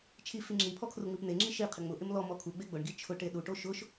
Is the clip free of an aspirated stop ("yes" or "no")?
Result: no